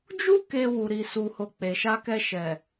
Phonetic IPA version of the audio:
d͡ʒ u˦ k e˧ w u˨ ɾ i˨ s u˨ h o˨ k͡p e˨ ʃ a˧ k ɛ˧ ʃ ɛ˨

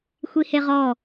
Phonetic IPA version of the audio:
xʷ i h e ʁ ɔ

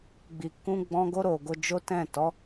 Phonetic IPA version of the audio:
ɡ͡b i˨ k ũ˧ ɡ͡b ɔ̃˦ ɡ o˧ ɾ o˨ ɡ o˧ d͡ʒ o˦ t ɛ̃˦˨ t ɔ˨˦

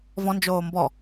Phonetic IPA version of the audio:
v ɔ̃ n d͡ʒ oː m b ɔ

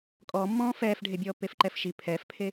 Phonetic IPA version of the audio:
kʼ ɔ mː ɔ̃ː f ɛː f ɖʱ e bʲ ɔː pː e f ǃ ɛ f ʃ i pʰ ɛ f pʰ e

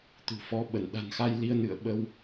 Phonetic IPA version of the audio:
t̪ ṳ˨˩ f ɔ˨˦ ɓ ə˧˩ n ɗ a̤˨˩ n x a˧ j l i˧ ə̯ n ɨ̰˧˨ ə̯ ɓ ə˧ w

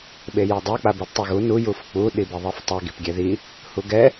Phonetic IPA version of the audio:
ɓ e j e dˤ ɛ k͡p a b o d tˤ ɛ ɣ u n u j u f k͡p u ɗ i b i ðˤ e f tˤ e ɡ i p ɡʲ ɛ ð i | h u ɡ ɛ

